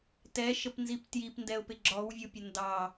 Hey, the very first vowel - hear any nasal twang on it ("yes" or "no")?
no